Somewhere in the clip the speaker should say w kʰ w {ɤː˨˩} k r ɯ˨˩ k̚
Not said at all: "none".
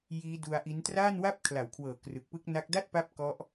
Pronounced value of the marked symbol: ɤː˨˩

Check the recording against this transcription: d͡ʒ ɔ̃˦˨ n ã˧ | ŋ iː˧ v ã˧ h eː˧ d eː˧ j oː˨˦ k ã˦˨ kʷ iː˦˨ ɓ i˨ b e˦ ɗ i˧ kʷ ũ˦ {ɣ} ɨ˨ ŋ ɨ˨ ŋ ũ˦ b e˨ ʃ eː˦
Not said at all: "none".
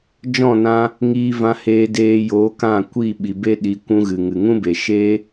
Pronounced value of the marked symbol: ɣ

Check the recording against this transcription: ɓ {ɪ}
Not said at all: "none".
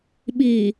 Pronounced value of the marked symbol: i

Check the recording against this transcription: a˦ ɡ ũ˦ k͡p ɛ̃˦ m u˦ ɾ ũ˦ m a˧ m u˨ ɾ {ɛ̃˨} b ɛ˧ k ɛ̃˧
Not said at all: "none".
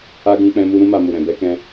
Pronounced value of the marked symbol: ɛ̃˨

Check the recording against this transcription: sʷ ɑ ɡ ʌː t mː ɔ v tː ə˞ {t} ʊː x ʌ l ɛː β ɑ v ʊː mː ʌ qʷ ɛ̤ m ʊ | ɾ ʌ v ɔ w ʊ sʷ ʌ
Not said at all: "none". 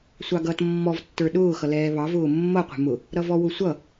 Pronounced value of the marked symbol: ɗ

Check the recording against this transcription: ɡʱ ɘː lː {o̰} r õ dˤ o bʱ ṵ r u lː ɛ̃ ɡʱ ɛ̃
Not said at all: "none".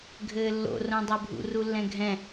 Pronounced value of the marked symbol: o̰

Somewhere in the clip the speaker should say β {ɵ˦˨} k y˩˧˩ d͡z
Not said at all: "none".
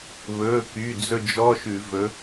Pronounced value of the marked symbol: ɵ˩˧˩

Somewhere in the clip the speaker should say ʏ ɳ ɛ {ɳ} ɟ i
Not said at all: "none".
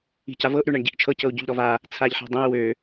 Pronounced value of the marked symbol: ɳ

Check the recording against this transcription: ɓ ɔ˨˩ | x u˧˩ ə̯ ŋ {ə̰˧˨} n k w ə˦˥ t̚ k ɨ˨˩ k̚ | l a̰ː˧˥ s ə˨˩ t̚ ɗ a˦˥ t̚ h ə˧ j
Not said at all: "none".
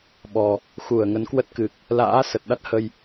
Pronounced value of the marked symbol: ə˨˦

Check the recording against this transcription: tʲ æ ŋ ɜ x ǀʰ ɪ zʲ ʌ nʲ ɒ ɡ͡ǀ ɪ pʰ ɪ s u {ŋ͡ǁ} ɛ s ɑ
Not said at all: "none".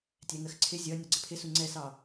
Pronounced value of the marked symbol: ŋ͡ǀ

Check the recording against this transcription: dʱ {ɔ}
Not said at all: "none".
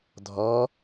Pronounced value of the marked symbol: ɔ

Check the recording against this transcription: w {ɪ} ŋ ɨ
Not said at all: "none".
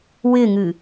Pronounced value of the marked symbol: ɪ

